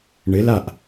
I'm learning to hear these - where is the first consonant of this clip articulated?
retroflex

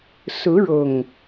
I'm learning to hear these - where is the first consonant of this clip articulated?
tongue tip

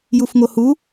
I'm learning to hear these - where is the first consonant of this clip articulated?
palate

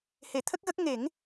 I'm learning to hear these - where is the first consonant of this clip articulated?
throat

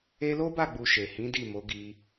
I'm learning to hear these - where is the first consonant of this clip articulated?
tongue tip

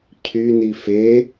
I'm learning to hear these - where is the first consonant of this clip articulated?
palate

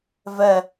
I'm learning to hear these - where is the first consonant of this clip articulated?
lips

